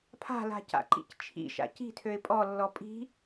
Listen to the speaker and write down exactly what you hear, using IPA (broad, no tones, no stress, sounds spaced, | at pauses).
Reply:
pʰ a̤ l a̤ c a̰ ǃ ḭ c t͡ʃʰ ḭ ʃ a̰ c i̤ tʰ ø ɪ̯ pʼ ɔ lː ɔ pʼ i̤